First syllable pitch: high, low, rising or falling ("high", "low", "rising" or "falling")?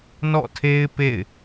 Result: falling